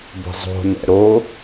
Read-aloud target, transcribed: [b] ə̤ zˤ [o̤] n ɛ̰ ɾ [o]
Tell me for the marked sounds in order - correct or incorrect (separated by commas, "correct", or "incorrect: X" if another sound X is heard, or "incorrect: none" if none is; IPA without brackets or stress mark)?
correct, correct, correct